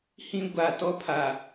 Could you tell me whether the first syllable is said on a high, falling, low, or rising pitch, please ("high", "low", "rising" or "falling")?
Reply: high